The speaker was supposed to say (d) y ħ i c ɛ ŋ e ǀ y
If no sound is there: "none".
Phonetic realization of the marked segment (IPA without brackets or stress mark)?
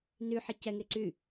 n